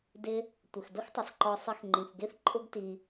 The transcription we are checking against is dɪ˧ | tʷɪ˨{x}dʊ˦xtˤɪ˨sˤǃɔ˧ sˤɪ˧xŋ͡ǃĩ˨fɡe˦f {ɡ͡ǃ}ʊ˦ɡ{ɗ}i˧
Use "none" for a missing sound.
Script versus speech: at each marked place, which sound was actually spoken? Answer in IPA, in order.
x, ǃʼ, t

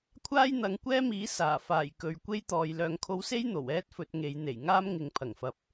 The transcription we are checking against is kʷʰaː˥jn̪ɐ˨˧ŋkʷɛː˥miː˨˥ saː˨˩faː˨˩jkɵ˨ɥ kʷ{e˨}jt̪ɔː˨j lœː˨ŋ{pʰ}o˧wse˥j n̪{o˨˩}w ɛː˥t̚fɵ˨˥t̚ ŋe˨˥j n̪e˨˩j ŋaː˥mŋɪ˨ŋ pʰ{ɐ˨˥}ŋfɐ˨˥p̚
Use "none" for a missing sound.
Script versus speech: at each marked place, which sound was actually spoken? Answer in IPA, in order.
e˥, kʰ, o˨˩, ɐ˨˩

